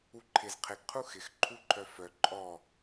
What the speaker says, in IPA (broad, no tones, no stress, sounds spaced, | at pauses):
u ǃʰ ɪ z qʰ ɪ ɡ qʰ u x ɪ x ǃʰ u ǃʰ œ f œ ǃʼ ɔ